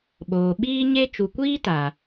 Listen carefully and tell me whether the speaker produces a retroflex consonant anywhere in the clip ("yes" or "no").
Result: no